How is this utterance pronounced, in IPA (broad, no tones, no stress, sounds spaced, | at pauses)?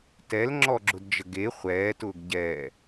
t ɛ l ŋ͡ǁ ɔ ɡ͡ǁ ʊ d d͡ʒ ə ɡ e χʷ ɛː t ʊː ɡ ɟ ɛː